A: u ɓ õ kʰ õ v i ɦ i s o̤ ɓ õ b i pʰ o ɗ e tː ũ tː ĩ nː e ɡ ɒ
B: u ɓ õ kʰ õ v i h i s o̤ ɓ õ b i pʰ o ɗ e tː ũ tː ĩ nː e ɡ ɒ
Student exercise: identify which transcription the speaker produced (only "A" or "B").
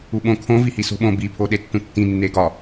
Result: B